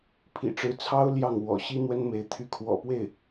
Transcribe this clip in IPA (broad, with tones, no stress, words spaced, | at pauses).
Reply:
pʰḭ˨˩ʈ͡ʂɻ̩˧˥t͡sʰɑ˥ʊ̯ ljɑ˥˩ŋwɔ̰˨˩ ɕi˥n̪wə˥nme˧˥ɪ̯ t̪ʰy˧˥kʰwɔ̰˨˩pwe˥˩ɪ̯